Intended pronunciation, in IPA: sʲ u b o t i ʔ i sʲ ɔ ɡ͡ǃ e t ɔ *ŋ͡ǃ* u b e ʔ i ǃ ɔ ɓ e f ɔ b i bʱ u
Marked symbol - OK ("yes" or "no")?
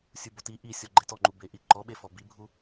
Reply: yes